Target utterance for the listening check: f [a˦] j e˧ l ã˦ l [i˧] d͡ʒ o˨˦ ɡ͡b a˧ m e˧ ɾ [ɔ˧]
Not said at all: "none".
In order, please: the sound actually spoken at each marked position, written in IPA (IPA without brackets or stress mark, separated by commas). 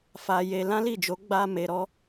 a˧, i˦˨, ɔ˦